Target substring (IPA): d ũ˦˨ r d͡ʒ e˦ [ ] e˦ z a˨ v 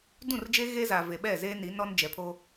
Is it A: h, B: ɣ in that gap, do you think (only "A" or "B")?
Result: B